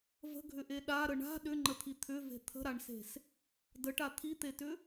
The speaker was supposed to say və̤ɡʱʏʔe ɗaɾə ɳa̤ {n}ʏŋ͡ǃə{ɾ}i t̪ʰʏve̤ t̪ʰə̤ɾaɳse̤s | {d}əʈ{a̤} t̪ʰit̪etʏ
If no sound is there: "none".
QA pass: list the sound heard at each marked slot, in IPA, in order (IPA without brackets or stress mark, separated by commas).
ɗ, t̪ʰ, d, a